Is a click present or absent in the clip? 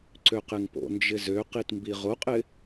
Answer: present